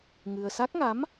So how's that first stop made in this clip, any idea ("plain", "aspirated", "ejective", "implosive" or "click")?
plain